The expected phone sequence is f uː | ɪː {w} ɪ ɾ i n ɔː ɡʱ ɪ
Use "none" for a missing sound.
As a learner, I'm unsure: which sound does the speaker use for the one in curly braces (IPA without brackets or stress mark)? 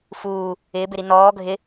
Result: b